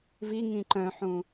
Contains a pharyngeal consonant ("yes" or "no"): yes